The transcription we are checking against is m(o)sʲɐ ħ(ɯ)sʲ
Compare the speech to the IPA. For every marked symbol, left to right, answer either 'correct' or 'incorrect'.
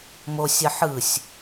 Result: correct, correct

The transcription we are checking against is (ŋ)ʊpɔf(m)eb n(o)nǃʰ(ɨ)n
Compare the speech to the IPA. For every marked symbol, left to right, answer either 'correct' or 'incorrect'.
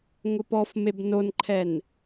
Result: correct, correct, correct, incorrect

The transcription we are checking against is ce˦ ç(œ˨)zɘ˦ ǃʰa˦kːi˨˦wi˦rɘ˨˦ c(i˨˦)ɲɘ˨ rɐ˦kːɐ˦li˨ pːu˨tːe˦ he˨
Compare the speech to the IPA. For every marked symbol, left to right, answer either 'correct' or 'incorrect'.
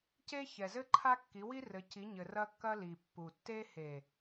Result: incorrect, correct

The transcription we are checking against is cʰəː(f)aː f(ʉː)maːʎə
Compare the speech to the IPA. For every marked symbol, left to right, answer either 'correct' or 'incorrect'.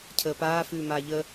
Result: incorrect, correct

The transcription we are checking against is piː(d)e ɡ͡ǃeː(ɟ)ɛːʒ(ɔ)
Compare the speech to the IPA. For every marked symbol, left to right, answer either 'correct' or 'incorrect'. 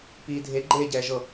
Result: incorrect, correct, incorrect

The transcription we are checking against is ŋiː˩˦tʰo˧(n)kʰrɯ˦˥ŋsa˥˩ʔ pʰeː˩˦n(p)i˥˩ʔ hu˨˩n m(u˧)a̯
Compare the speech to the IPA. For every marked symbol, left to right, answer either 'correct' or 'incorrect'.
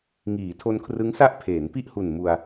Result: correct, correct, correct

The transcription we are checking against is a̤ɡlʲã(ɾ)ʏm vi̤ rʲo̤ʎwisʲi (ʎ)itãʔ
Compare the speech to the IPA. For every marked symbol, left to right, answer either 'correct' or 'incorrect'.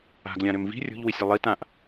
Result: correct, incorrect

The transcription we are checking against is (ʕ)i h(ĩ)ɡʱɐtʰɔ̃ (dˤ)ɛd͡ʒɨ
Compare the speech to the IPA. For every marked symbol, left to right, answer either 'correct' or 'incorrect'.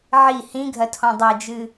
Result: correct, correct, correct

